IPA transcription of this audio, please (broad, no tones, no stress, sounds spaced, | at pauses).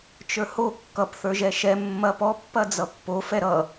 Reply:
t͡ʃ ə˞ h o kː ʌ p θ ə˞ ʒ ɛ ʃ ɛ mː ɐ p ɔ pː ɐ d͡z ʌ pː o f ɛ ɾ ʌ